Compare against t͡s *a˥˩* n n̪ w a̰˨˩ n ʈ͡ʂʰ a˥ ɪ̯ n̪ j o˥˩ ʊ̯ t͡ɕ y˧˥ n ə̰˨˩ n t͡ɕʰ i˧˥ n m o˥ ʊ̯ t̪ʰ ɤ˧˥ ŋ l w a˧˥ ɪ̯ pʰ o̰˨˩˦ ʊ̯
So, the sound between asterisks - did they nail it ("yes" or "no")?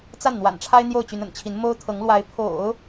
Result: yes